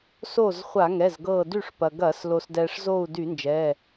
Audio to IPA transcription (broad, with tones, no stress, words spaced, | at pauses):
so˧˩z χʷa˧˩˧ŋɛ˩˧˩zɡɤː˧˩ dy˧˩ʂ pɐ˩ɡɐː˧˩˧s lo˩sdɛː˩ʂzo˧˩u̯ dy˧˩˧nd͡ʒɛː˩˧˩